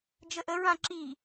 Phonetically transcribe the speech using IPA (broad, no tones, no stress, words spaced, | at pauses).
d͡ʒəʔə ɹãǁi